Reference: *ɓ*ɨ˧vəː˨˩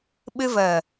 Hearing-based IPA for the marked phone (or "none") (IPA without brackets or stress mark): ɓ